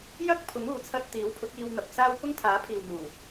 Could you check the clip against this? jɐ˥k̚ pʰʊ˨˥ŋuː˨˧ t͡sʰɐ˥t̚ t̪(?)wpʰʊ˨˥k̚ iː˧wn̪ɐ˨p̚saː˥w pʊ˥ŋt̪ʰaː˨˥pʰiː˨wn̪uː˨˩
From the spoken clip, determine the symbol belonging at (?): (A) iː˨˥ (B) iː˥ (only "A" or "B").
A